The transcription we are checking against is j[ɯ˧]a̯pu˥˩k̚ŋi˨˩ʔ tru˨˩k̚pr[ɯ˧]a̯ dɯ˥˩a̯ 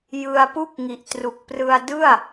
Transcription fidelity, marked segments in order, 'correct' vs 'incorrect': correct, correct

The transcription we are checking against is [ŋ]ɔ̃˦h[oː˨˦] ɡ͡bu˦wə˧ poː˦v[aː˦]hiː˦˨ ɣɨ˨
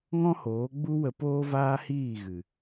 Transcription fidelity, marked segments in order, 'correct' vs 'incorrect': correct, correct, correct

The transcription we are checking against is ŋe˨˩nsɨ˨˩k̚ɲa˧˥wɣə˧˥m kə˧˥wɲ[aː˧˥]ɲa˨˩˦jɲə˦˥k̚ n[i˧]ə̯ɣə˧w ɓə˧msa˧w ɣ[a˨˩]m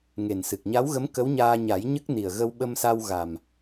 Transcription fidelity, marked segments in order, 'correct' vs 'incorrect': incorrect: aː˧, incorrect: i˨˩, correct

